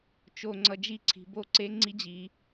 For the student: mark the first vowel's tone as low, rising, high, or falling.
low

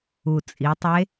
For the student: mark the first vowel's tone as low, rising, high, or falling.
low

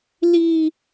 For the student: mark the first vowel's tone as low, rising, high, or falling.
high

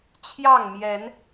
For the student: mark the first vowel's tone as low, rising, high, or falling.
falling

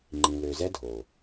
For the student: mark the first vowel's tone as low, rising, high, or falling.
low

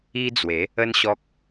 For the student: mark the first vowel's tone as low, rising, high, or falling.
high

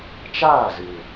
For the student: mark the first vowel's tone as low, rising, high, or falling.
falling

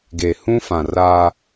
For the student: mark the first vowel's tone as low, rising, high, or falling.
low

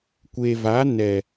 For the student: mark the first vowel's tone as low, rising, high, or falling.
low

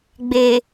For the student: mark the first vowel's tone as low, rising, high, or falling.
low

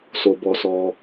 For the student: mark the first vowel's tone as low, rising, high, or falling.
low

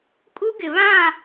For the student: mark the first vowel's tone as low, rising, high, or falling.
high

